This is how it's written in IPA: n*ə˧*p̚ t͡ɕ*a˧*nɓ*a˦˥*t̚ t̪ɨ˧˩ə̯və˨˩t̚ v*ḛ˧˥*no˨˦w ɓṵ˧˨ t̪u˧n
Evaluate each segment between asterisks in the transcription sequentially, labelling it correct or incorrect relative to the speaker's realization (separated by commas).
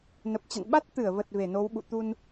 incorrect, incorrect, correct, incorrect